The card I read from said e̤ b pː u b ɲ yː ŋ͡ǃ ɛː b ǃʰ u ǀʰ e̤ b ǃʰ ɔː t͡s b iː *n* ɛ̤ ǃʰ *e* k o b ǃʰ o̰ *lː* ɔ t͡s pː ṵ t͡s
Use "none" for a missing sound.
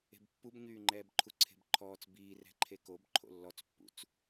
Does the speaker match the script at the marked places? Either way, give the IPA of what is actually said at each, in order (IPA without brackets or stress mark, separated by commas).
r, e, lː